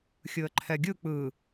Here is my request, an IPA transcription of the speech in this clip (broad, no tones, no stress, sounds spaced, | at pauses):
xʲ ɯ ə̯ ǃʰ ɛ ɡʲ ɯ k͡p ɯ